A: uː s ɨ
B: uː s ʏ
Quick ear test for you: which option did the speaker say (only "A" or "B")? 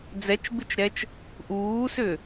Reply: B